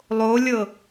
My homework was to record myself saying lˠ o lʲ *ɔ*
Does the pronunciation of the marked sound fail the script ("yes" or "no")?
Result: yes